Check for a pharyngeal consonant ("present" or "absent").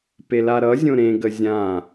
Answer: absent